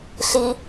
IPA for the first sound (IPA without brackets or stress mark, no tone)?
ɬ